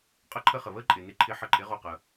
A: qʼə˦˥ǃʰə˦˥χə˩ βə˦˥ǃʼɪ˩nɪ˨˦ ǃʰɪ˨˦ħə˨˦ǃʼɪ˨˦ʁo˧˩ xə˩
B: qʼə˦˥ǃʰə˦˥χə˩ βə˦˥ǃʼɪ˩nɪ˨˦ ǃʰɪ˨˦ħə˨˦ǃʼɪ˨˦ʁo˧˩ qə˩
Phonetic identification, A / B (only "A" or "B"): B